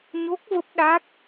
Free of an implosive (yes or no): no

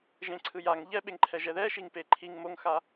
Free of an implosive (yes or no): no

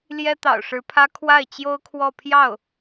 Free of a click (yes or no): yes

